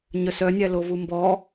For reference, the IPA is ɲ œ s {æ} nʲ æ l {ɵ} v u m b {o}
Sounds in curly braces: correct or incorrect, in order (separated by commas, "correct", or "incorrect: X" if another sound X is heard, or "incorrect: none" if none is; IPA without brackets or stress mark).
incorrect: œ, incorrect: o, incorrect: ɔ